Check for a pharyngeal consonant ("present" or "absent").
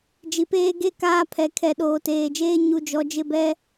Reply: absent